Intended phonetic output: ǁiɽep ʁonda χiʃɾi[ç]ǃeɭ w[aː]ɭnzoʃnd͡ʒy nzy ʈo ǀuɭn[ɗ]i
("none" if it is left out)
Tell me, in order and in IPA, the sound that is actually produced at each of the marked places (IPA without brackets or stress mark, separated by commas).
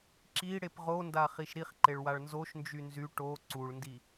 χ, a, d